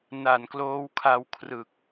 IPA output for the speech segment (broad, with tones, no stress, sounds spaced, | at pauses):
n a˨˩ n k l oː˦˥ w kʰ a˧ w kʰ r ɯ˨˩ k̚